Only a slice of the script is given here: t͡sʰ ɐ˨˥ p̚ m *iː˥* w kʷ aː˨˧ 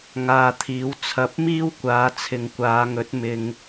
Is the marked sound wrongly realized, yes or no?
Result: no